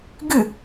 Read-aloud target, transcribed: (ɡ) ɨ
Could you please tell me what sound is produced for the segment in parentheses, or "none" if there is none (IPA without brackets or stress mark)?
ɡ